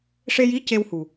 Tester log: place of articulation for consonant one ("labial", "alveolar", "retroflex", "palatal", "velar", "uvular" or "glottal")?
retroflex